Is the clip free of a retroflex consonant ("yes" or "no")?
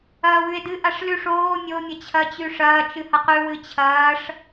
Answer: no